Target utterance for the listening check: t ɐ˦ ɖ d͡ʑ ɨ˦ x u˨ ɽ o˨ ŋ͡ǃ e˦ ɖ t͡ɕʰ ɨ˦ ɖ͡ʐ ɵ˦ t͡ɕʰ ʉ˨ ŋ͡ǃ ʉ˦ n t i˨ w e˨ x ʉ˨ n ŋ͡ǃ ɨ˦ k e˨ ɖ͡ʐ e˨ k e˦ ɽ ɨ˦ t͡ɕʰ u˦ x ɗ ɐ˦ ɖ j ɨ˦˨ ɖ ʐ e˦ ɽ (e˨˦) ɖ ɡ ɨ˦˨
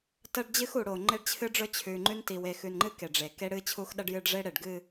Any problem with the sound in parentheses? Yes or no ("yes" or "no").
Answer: yes